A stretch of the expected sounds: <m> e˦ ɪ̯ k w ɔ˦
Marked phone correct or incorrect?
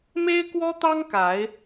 correct